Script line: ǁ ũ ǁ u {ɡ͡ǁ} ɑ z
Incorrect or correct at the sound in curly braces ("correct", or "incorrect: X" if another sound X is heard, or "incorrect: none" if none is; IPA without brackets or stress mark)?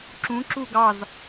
incorrect: ɡ